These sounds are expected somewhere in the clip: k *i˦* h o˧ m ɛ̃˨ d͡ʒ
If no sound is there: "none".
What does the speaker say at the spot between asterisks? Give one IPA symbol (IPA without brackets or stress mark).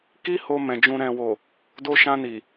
i˦